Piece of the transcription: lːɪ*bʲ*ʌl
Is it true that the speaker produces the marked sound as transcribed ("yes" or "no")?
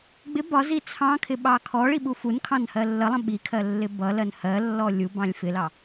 no